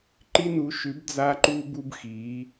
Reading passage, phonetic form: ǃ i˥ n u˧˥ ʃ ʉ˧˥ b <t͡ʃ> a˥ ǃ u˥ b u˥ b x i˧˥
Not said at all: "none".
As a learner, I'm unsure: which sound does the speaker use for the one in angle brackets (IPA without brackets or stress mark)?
d͡z